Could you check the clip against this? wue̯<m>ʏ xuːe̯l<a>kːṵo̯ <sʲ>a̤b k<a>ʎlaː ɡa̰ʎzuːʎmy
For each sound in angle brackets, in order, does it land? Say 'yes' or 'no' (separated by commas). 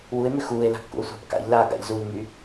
yes, no, no, no